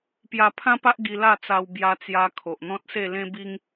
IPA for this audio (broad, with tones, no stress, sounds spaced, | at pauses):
p j a˧ pʰ ã˦ p a˦ ʔ ɡ i˧ l a˥˧ t͡s a˧ w b j a˧ t͡s j a˧ kʰ o˨ ʔ n̪ ɔ̃˦ t̚ s e˥˧ l ẽ˦ b i˦ ŋ